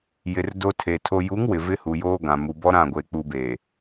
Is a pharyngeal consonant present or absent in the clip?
absent